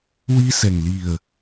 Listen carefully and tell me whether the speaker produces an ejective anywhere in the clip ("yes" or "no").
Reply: no